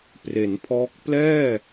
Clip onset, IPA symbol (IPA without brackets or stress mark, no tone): p